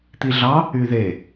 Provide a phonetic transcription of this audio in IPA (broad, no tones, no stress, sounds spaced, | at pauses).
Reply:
t̪ i ɮ ɑ | y ð e